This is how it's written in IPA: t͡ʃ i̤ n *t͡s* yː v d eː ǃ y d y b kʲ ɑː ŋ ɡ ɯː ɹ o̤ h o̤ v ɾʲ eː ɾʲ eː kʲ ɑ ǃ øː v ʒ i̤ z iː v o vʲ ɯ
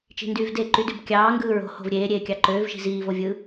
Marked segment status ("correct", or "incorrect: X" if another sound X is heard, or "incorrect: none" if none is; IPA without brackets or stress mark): incorrect: d